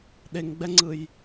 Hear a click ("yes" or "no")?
yes